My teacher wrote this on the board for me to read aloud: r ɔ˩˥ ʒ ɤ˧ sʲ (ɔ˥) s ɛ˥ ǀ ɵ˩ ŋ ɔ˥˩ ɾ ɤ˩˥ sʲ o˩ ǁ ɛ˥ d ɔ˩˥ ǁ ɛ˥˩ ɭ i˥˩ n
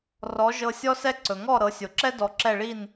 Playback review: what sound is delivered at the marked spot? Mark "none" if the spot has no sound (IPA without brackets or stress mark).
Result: ɔ˥